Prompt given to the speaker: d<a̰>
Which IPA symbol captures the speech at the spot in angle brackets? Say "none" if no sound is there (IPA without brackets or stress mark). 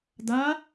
a